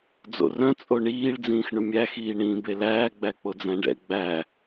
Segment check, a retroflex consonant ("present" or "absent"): present